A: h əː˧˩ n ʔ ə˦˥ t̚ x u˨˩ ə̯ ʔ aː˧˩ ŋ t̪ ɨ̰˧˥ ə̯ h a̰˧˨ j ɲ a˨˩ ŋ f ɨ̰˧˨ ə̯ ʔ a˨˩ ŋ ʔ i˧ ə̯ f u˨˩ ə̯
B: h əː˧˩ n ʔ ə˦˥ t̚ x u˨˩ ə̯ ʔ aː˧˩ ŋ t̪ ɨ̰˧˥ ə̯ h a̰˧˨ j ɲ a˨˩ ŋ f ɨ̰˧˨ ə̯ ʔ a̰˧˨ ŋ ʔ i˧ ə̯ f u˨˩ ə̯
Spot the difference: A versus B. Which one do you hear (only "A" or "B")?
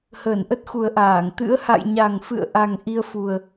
A